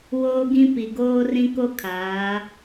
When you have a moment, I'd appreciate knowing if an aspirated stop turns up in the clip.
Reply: yes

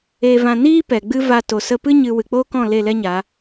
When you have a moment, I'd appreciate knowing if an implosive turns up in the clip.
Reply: no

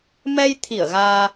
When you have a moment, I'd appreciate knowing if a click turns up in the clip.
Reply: no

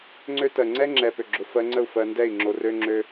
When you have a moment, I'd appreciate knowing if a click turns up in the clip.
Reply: yes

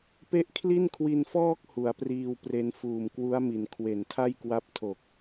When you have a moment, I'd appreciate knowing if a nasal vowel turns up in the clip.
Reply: no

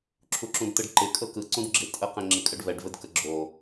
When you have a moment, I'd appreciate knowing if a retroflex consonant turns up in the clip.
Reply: yes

